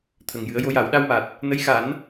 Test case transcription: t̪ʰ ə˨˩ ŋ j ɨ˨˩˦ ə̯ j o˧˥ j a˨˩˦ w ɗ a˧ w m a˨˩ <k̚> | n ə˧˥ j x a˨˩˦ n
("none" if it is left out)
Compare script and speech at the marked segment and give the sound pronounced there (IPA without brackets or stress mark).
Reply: t̚